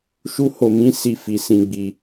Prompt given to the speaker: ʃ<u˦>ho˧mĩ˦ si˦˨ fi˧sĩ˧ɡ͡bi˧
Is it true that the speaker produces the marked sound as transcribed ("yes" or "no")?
yes